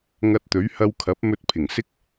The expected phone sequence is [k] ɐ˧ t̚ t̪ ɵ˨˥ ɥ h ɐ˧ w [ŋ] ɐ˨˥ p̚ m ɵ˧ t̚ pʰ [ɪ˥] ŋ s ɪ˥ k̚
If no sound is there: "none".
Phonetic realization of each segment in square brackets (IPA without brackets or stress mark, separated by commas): ŋ, kʰ, ɪ˨˩